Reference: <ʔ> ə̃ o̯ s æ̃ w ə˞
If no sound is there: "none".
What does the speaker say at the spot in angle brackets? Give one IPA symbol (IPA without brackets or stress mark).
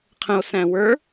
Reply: qʰ